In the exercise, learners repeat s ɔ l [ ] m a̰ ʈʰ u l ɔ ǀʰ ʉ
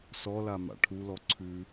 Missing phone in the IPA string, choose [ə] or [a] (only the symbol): a